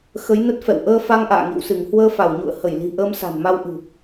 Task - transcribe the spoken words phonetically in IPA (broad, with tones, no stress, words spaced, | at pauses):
xə˨˦jnə˦˥t̚fɛ̰˧˨w ʔəː˧fa˧ŋ ʔa̰ː˧˨ŋḭ˧˨wsɨ˧˩ŋ hwəː˧ fa˧˩wɲṵ˧˨ə̯ hə˧˩jli̤˨˩ʔəː˧m sa̤˨˩nma˧wʔɨ̤˨˩